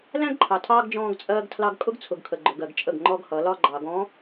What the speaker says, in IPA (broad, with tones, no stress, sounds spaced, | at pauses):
l æ̃˦ ɡ ǃʰ ɑ˨ tʰ ɑː˦ ɡ d͡ʒ ɔ̃ː˦ ɡ t͡sʼ ɜː˦ ɡ tʰ l ɑ˦ ɡ kʼ ʊ˦ ɡ t͡sʰ ʊ˨ ɡ kʰ ə˨ ɡ͡ǃ ʊ˨ ɡ ɜ˨ ɡ t͡ʃʼ ə˦˨ ɡ ŋ͡ǃ ɔ˦ ɡ h ʌ˨˦ l ɒ˦ ɡ͡ǃ ɑ˨ ɡ ɔ̃˨˦